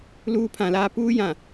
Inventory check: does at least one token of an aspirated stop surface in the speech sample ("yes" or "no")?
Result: yes